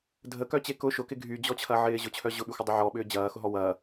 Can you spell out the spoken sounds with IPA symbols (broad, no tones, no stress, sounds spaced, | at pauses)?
dʱ ə k œ t͡ɕ e k ʊ ʃ ʊ k ɪ ɡʱ y d͡ʑ ɔ t͡ɕʰ ɐ ʕ ɪː ʑ ʊ t͡ɕʰ œ ʑ ʊ ɓ y xʷ ə dˤ ʊ ʕ ɔ ɓ ʏː d͡ʑ ɐː x ʊ ɦ ɔ w ɐː